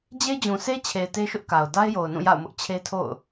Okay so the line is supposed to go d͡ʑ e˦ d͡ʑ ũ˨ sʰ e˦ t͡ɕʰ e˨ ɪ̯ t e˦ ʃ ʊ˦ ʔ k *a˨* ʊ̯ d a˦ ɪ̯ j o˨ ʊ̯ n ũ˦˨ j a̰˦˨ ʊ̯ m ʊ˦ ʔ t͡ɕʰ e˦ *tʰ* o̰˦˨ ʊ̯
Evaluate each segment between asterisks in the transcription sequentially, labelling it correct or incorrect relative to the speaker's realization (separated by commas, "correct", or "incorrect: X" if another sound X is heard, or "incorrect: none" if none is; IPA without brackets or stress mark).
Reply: correct, correct